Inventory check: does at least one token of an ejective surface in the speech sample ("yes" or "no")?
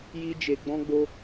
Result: no